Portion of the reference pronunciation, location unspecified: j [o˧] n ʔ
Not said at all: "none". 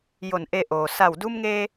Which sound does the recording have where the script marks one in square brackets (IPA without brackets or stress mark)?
o˧˩